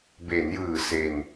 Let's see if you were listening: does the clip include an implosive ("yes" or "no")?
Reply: no